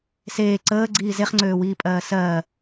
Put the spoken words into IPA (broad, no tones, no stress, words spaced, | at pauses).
seː ǀəːɡ͡ǀiː zeχŋ͡ǀøːwiːpʼɜː sɜ